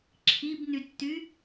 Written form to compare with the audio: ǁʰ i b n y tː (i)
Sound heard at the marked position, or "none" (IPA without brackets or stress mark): y